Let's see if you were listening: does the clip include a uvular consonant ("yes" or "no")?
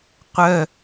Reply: yes